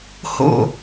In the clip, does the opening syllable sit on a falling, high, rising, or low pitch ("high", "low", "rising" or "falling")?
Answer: falling